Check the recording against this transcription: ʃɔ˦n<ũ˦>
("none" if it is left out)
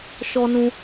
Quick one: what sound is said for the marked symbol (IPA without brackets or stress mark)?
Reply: ũ˦